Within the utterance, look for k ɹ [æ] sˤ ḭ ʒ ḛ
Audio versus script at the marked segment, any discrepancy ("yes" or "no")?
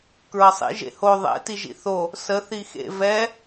yes